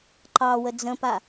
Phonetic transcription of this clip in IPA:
ǃ ɑ w ə d͡z ə̃ p a

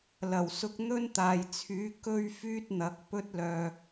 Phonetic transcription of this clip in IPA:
l ɐ˨˩ w s ʊ˧ k̚ n̪ ɵ˥ n t̪ aː˨ j t͡sʰ yː˨˥ k ɵ˧ ɥ f yː˥ t̚ n̪ ɐ˨˥ k̚ p ɵ˥ t̚ l œː˧

